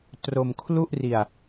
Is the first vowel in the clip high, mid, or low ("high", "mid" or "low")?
mid